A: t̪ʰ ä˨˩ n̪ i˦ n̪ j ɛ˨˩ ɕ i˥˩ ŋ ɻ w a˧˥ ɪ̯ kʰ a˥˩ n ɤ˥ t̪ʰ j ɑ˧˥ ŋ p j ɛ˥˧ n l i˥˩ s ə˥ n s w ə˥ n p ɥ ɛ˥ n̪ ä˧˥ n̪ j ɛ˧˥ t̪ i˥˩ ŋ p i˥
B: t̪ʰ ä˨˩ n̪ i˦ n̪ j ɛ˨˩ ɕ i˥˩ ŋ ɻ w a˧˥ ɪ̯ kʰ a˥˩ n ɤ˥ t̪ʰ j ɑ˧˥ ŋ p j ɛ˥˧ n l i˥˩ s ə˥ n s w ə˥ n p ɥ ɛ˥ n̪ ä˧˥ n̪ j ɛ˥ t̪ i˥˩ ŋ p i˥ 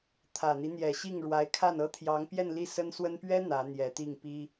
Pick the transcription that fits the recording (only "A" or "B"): A